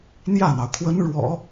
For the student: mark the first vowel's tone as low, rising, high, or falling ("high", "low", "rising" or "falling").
falling